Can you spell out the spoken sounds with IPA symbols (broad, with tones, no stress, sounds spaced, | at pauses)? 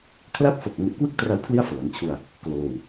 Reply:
kʰ l a˥˩ p̚ f o˨˩ k̚ ŋ u˨˩ ʔ k w ɯ˥˩ k̚ t r a˧ w pʰ l i˥˩ a̯ f ɤː˩˦ n t͡ɕʰ u˧ a̯ | k l oː˧ w